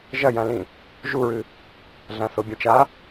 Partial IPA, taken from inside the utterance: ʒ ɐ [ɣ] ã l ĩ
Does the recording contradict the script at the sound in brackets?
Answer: yes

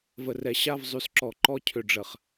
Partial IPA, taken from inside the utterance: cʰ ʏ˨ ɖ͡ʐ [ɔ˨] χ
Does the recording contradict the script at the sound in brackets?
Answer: yes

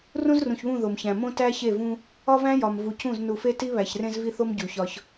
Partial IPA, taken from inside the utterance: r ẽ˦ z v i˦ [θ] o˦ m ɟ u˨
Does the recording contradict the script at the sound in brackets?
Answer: no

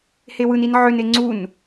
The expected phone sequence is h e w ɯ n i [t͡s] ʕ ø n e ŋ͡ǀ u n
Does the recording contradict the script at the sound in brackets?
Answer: yes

